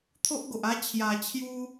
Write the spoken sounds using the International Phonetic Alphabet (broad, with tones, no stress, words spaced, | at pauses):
t̪ʰo˦ʔ ɡo˨ʔa˦ t͡ɕʰja˨˩t͡ɕʰju˧